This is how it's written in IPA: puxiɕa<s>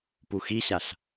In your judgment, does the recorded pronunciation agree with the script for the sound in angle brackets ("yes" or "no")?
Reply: no